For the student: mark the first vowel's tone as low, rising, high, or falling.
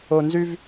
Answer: low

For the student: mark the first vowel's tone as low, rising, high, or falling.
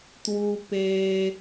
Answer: low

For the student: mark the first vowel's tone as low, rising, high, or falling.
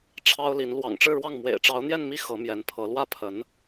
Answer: high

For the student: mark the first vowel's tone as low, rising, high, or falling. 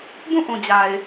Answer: falling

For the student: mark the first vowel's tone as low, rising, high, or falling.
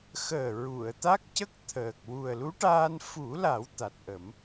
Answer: low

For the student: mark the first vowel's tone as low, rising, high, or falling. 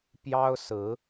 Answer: high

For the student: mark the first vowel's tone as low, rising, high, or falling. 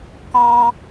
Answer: high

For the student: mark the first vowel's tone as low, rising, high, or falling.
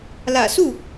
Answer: low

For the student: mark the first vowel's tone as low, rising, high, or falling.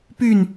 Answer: falling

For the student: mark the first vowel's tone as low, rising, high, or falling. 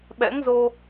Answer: rising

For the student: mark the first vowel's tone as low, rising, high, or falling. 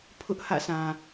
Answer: high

